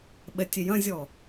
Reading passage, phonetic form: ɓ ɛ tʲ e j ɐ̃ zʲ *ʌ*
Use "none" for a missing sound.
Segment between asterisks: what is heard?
ɔ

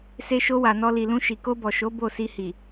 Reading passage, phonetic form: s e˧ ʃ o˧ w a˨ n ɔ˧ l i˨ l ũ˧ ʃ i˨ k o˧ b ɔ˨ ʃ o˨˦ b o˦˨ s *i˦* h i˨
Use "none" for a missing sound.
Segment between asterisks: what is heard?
i˧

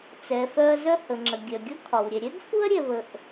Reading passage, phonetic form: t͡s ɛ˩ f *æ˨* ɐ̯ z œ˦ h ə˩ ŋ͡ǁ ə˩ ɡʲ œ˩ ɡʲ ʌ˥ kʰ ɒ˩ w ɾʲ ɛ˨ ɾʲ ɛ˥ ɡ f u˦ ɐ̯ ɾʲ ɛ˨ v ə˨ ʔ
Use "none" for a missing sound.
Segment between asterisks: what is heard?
œ˨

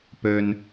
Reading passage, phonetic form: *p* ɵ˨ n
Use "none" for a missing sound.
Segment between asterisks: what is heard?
p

